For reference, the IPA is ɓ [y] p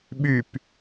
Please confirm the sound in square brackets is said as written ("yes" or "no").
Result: yes